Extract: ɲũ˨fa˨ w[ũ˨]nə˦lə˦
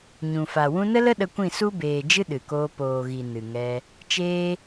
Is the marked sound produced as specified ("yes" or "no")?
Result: no